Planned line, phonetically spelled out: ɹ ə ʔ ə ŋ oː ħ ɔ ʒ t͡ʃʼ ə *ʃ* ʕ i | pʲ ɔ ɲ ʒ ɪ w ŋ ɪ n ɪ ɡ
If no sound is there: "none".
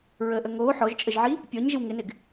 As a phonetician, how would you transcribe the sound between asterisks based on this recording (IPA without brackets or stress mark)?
ʒ